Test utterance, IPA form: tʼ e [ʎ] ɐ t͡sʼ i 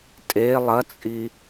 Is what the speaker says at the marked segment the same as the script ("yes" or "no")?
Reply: no